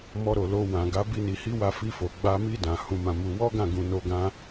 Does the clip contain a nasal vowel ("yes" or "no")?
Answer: yes